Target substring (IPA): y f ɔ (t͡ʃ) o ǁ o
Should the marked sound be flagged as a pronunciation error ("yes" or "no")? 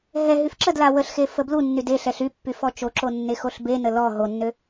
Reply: no